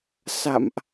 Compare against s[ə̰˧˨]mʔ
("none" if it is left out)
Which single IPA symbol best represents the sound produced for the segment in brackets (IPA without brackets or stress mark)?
a̰˧˨